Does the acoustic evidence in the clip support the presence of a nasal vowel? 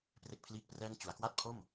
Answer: no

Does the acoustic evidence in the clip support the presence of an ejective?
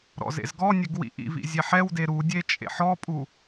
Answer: yes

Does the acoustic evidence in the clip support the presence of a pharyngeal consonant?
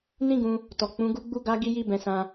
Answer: no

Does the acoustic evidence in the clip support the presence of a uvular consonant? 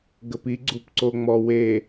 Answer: no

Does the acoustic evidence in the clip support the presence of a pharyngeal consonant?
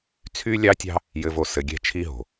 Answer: no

